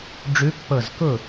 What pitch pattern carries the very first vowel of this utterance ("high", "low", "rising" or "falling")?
rising